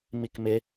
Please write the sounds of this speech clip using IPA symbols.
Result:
m i k m ɪ

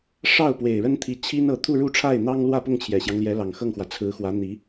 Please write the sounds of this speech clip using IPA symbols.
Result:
ʂ ɑ˥˩ ʊ̯ p w e˨˩ ɪ̯ ɻ ə˥ n t̪ʰ i˧˥ t͡ɕʰ i˥ n ɤ˧˥ t̪ʰ u˥˧ ɻ u˥˧ ʈ͡ʂʰ a˥˩ ɪ̯ n̪ ɑ˥ ŋ l w ä˥˧ p ʊ˥˩ ŋ t͡ɕʰ j ɛ˨˩ ɕ j ɑ˦ ŋ l j ɛ˧˥ l ɑ˨˩ ŋ x ɤ˥˩ ŋ x w ä˩ t͡sʰ ɹ̩˧˥ x w ä˧˥ n̪ i˧˥

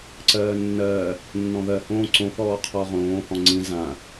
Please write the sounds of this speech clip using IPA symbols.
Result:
ǀ ɜː nː ɜː | nː ɔ̃ ð ɜ h õː ǀ õ θ ɔː qʰ ɔ ʁ õː h ɔ̃ ŋ͡ǀ ĩ z ã

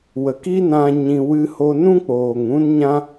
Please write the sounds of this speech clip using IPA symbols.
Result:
w ə˨ k i˦ n ã˧ ɲ ĩ˧ w ɨ˦ h o˦ n ũ˦ k͡p oː˨ ŋ ũ˦ n ɲ ã˦

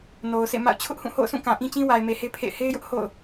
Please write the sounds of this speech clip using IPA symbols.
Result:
n o˨ ʊ̯ s ḛ˦˨ m a̰˦˨ ʊ̯ t͡ɕʰ ʊ˦ ʔ h ũ˦˨ h o̰˦˨ ʊ̯ s ũ˦˨ k ã˨ ʔ ĩ˦ t͡ɕ ĩ˦ w a˨ ɪ̯ m e˨ h e˦ pʰ ḛ˦˨ ɪ̯ h e˦ ɪ̯ j ʊ˦ ʔ h o̰˦˨ ʊ̯

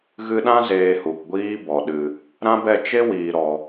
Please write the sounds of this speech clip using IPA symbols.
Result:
ɣ ɨ˧ ɗ ã˦ z eː˧ h u˨ k ɡʷ iː˦ b ɔ˨ ɗ ɨ˨ | ɾ ã˦ b ɛ˦˨ t͡ʃ e˦ w iː˨ ɾ ɔ˨

